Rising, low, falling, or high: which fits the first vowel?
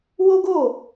high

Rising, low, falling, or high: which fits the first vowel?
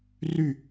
falling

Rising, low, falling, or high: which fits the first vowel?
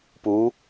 rising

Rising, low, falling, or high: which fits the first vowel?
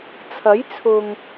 rising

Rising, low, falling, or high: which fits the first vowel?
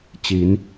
rising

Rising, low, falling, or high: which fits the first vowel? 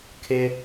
high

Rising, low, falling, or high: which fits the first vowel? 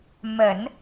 low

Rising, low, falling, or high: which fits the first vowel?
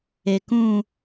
low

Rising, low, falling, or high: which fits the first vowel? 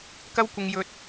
high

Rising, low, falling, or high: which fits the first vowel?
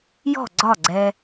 falling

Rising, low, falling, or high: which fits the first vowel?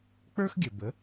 high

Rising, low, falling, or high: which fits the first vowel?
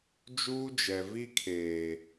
high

